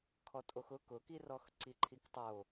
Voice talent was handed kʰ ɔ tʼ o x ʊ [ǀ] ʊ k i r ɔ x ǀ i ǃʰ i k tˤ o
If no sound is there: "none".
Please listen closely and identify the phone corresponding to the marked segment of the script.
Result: k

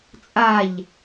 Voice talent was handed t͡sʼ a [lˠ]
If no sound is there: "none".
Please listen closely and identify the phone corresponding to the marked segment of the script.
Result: ʎ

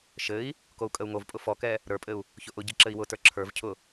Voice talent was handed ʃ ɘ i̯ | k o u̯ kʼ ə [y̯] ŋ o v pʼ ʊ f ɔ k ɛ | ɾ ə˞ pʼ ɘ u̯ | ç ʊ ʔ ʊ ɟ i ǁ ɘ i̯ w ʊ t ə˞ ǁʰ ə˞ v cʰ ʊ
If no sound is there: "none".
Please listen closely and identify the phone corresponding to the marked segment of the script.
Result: u̯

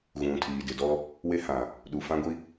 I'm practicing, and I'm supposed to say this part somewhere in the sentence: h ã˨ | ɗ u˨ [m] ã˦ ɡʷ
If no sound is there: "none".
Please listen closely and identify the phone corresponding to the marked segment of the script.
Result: f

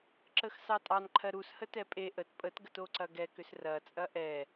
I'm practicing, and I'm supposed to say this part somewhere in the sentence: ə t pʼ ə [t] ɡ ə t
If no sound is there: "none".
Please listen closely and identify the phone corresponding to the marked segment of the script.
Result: t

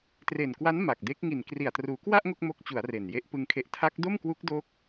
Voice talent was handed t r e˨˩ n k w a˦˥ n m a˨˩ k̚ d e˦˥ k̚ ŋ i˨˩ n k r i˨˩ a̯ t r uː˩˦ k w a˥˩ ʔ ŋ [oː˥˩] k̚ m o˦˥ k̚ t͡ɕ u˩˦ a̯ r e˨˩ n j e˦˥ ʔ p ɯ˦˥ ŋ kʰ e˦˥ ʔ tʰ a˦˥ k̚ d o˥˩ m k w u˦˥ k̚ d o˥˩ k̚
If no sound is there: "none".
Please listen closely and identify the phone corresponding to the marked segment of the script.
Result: o˥˩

